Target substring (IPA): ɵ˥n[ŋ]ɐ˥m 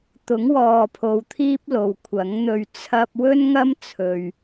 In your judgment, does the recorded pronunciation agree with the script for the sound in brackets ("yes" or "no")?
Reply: yes